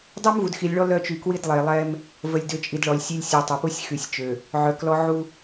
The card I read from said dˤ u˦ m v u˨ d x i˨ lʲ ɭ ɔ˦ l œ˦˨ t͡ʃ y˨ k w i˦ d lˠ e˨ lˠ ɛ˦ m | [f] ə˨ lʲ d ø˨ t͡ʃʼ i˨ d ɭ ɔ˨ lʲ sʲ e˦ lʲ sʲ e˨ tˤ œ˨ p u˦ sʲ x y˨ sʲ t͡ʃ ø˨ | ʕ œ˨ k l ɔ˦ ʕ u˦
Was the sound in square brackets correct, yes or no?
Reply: no